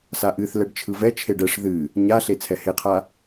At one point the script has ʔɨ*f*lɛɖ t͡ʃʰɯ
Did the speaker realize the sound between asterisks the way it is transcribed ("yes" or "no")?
no